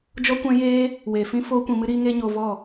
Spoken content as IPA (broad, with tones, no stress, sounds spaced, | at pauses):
d͡ʒ ɔ˦ kʷ ɛ̃˦ j eː˦ | w eː˨ f ĩ˦ f oː˦ kʷ ĩ˧ m ɨ˦ ɾ iː˦ ŋ eː˦ ɲ oː˧ v ɔ˦˨